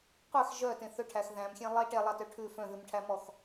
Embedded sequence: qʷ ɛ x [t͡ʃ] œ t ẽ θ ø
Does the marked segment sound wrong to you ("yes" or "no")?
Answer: yes